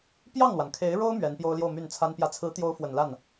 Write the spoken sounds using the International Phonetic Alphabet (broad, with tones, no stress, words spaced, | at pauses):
pjɑ˥˩ŋlwa˩nkʰe˧˥ɪ̯ɻo˥ʊ̯ mɥɛ˧˥npjo˥ʊ̯ljo˥˧ʊ̯ my˥˩nt͡sʰa˥npjä˥˩ t͡sʰɹ̩˧˥t̪jo˧˥ʊ̯ fwə˨˩nla˥˩n